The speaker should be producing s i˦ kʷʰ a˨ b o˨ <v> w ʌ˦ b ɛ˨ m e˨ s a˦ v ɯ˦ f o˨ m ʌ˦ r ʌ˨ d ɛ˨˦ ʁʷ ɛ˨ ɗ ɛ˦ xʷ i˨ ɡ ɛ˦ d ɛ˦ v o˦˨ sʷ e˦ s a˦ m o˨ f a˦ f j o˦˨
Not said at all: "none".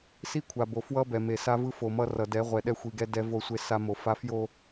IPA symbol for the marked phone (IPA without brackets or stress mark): f